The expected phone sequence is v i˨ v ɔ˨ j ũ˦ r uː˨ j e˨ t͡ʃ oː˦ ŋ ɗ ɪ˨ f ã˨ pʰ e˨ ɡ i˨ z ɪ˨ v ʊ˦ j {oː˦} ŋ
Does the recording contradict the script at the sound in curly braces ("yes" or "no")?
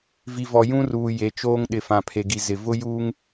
yes